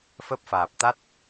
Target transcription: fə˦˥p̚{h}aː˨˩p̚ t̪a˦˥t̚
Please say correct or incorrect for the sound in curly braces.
incorrect: f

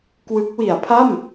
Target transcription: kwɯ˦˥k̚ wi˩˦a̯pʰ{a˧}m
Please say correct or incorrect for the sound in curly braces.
incorrect: a˥˩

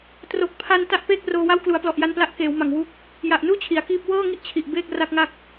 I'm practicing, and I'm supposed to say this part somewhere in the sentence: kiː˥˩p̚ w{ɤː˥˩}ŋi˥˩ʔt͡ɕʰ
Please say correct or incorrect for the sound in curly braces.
correct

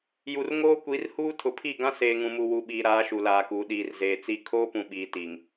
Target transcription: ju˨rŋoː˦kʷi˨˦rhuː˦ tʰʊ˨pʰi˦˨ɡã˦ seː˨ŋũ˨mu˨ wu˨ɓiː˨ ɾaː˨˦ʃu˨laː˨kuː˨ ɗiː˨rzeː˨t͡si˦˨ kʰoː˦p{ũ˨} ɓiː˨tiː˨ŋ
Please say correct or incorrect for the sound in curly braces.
correct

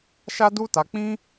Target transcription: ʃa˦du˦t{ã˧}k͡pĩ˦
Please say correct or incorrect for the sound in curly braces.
incorrect: a˧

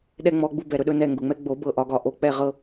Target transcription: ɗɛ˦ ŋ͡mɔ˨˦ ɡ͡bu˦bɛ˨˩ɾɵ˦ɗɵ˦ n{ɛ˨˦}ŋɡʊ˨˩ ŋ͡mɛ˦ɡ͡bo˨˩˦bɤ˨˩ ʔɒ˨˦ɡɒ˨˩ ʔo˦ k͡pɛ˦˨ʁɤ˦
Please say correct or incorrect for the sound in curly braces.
incorrect: ɛ˦˨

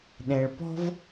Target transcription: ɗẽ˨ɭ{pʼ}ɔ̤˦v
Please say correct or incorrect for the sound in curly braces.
incorrect: p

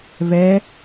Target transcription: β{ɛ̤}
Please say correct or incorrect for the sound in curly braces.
incorrect: ɛ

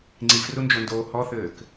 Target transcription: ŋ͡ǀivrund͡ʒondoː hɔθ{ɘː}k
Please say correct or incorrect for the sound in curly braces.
correct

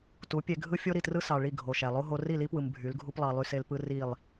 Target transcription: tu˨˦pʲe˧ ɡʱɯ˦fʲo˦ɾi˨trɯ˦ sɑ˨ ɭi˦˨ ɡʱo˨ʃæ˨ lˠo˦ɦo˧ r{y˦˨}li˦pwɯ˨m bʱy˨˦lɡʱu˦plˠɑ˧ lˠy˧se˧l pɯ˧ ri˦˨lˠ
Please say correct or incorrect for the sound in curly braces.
incorrect: i˦˨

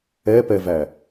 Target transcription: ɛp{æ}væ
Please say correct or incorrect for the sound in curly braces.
incorrect: ɛ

